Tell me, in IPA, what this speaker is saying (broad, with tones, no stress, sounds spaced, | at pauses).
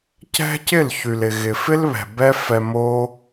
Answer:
c ɛ̤˦ c ɪ˦˨ l ç y˨ l ɪ˨ ɣ ɪ˨ f ɪ˦ l β ɛ̤˨ b ɛ˦ f ɛ˧ m o˦